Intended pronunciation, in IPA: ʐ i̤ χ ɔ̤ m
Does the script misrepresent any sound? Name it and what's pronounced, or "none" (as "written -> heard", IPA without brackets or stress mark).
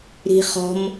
ʐ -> ɾ